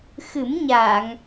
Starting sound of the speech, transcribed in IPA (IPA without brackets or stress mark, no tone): x